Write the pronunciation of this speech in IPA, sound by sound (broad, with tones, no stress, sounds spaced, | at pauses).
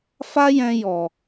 f a˦ j ɛ̃˧ j ɔ˨